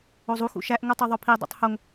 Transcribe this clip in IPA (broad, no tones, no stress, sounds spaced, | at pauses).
o zˤ u x ṵ ʃ æ ʔ ŋ u tˤ u ðˤ o pʰ i dˤ ṵ tˤ h o ŋ